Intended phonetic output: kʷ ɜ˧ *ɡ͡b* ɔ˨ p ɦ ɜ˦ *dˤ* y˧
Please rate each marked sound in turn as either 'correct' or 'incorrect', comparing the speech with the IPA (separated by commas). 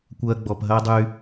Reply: correct, correct